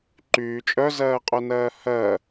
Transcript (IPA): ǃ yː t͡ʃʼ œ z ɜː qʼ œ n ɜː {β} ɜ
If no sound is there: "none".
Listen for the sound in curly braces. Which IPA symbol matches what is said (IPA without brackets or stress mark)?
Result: h